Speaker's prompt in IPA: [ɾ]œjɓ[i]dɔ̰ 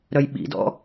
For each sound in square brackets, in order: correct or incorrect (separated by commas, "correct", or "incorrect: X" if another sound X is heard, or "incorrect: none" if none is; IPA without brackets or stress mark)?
correct, incorrect: ḭ